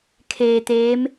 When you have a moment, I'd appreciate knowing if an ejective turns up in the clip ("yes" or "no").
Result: no